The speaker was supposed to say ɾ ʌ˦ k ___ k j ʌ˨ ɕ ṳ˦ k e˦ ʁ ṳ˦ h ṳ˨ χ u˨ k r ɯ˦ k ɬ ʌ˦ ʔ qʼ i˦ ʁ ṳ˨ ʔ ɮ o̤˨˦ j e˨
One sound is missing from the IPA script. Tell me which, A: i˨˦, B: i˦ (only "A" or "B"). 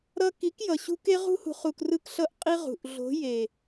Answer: A